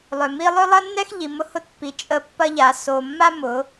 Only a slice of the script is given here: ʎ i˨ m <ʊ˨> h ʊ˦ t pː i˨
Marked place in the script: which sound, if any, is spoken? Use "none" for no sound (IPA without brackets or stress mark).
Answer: ʊ˦